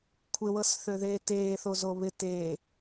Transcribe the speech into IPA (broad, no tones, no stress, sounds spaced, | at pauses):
kʷʰ ɪ w ɤ s θ ø ð eː t eː θ o z o β ɪ t eː